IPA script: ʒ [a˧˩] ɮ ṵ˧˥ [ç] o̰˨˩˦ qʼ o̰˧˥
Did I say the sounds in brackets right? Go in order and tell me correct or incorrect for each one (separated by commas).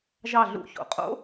incorrect, correct